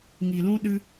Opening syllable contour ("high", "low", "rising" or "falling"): low